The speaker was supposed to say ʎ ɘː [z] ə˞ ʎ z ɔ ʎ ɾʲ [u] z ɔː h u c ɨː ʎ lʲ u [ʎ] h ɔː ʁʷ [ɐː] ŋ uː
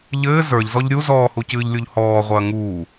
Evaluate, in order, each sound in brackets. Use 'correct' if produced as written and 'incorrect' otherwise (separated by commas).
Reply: correct, correct, correct, correct